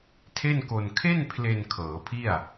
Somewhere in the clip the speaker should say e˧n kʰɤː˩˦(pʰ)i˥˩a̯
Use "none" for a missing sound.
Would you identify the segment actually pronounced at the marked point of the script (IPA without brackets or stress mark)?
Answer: pʰ